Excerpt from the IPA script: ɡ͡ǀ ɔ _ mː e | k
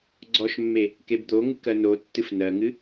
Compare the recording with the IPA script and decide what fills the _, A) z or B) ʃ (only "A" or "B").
B